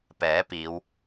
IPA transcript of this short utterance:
p ɛː˨˥ p iː˨˧ w

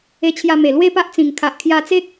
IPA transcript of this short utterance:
e˧ t͡ɕʰ j a˧ m e˨˩ l w e˥˧ p a˦ ʔ t͡s ĩ˨˩ ŋ kʰ a˨ ʔ kʰ j a˧ t͡s e˦ k̚

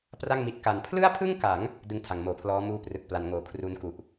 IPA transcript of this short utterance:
p r a˥˩ ŋ m i˦˥ t̚ k a˧ n pʰ l ɯ˥˩ a̯ pʰ ɯ˥˩ ŋ k a˩˦ ŋ | d ɯ˧ ŋ tʰ a˩˦ ŋ m oː˨˩ pʰ l ɔː˦˥ m uː˧ p r ɯ˨˩ k̚ p l a˩˦ n ŋ oː˨˩ kʰ r u˦˥ n k u˨˩ ʔ

